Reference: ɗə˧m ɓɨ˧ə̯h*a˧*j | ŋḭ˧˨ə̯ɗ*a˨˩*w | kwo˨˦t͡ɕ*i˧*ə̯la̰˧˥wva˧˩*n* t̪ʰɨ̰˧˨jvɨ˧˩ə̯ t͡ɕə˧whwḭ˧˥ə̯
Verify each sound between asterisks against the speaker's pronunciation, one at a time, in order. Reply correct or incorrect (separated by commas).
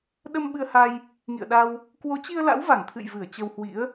correct, incorrect, correct, incorrect